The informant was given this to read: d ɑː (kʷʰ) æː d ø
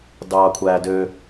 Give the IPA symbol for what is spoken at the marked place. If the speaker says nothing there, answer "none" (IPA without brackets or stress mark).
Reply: kʷʰ